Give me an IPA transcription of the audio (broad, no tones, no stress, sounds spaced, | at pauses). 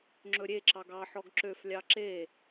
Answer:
ŋ͡ǁ ɵ ɾʲ e ǁ ɑ ɡ ɑ ħ ɔ ɡ ǁ ø f lʲ ɑ ǁ e